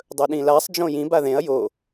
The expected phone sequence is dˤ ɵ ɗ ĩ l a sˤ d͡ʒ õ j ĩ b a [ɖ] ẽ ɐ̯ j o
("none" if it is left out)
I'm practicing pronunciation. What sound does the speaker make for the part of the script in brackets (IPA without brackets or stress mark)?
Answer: ð